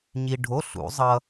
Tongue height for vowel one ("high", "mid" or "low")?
high